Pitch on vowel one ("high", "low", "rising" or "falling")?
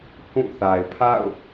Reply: falling